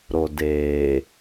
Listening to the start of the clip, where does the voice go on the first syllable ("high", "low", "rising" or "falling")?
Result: low